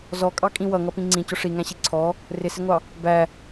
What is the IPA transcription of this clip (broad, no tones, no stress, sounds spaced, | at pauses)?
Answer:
z ɔ kʼ ɑ kʼ ĩ w ʌ ŋ ʌ p ĩ ŋ͡ǀ ĩ c ʊ ʂ i ŋ æ̃ ɕ i ǀʰ ɔ | r ɪ s ɪ ŋʷ ɑ | b æ